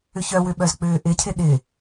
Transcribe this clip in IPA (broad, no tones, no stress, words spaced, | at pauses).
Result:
ʏçœwʏɓœz k͡pʏːʔɪcʰɪ ɗɪ